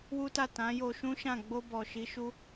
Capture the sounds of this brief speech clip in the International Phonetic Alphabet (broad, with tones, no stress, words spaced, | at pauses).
wu˦ta˦˨ tã˨˦jo˧ ʃũ˦ʃã˦˨ ɡ͡bo˧ bɔ˨ʃi˨˦ ʃu˧